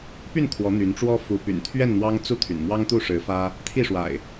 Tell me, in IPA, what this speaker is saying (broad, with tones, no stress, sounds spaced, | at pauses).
p y˥˨ n kʰ w ɔ˨˦ n̪ y˨˦ n ʈ͡ʂ w ɔ˦ f u˨˦ p y̰˨˩ n t̪ʰ ɥ ɛ˥˨ n n̪ w ɑ˦ ŋ t͡s u˥˨ t̪ʰ y̰˨˩ n m w ɑ˦ ŋ t̪ u˥˨ ʂ ɻ̩˨˦ f ä˦ | t̪ʰ i˥˨ ʂ w a̰˨˩ ɪ̯